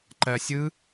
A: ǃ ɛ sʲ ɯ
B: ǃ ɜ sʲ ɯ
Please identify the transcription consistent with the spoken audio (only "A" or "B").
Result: B